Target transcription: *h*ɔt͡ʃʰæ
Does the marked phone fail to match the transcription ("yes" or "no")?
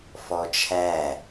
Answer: yes